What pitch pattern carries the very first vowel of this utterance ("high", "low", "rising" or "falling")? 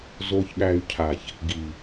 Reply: low